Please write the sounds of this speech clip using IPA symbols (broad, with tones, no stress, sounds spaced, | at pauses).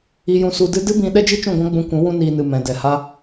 i˧ j ũ˧ s u˧ d ɨ˦ d ɨ˦ b ĩ˧ ɗ ɛ˦ d͡ʒ i˦ t͡ʃ ũ˦˨ ɡʷ ã˦ ɡ͡b ũ˧ kʷ ũ˨˦ w ũ˦ n iː˧ n ɨ˨ m ɛ̃˨ d ɛ˨ h a˦